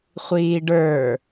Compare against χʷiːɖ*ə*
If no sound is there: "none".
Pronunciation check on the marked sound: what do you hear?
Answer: ə˞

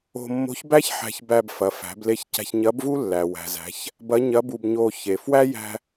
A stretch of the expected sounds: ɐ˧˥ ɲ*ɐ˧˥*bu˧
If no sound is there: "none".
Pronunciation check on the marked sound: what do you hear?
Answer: ɐ˧˥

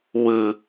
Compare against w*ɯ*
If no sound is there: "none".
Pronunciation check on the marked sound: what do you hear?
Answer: ɯ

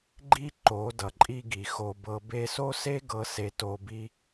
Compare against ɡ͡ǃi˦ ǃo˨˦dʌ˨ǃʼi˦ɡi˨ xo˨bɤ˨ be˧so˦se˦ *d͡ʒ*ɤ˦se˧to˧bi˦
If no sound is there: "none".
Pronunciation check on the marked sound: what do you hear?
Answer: ɡ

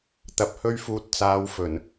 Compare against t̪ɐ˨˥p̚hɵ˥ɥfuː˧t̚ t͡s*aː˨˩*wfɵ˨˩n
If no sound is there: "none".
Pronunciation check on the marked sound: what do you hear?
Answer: aː˨˧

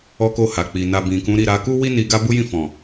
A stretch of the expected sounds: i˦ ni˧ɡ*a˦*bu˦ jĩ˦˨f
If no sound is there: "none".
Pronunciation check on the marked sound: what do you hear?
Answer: a˦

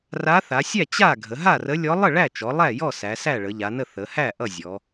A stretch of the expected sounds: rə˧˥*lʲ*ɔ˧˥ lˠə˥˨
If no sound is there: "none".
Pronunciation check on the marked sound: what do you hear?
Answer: lʲ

